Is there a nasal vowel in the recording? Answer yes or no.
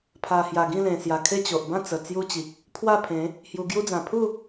yes